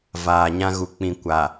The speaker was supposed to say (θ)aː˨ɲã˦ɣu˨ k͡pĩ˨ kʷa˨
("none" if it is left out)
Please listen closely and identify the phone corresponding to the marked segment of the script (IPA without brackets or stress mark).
v